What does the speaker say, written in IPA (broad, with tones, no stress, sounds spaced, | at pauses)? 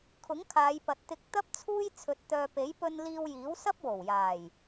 kʰ ʊ˨˥ ŋ kʰ aː˨˧ j p ɐ˨ t̚ t̪ ɪ˧ k̚ t̪ ɐ˥ p̚ t͡sʰ uː˥ j t͡sʰ ɵ˧ t̚ t̪ œː˧ p e˨˥ j p ɵ˧ n l iː˧ w j iː˨˥ w s ɐ˥ p̚ w o˨˩ w j aː˨˩ j